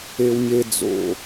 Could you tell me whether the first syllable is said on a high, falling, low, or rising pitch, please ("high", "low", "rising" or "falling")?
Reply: high